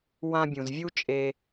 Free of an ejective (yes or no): no